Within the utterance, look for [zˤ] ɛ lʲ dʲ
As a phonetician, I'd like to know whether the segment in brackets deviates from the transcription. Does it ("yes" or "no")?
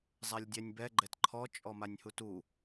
no